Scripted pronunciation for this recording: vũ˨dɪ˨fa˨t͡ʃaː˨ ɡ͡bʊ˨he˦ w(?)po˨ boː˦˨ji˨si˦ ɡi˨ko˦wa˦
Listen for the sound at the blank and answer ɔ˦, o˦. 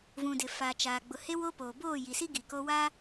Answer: o˦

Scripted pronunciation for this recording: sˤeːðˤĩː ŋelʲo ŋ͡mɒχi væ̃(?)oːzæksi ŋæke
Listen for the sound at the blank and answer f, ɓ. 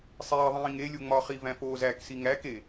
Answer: f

